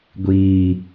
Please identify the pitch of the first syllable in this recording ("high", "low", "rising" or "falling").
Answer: low